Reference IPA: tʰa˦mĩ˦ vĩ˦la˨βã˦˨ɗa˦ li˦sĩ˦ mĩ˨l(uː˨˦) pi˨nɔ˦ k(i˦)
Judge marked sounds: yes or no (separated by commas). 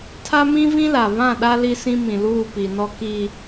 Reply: no, yes